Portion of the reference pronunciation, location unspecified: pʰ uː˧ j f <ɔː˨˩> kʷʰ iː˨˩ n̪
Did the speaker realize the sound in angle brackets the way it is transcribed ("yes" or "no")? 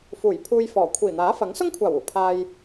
yes